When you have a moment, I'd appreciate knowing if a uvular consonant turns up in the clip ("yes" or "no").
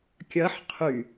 yes